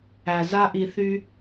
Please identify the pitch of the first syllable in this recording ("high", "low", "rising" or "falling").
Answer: low